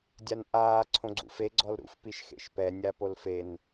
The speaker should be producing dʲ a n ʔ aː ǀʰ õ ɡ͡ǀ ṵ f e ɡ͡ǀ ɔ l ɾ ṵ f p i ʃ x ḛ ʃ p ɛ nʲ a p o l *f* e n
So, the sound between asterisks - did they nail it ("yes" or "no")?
yes